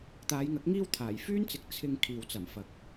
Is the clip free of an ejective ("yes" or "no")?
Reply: yes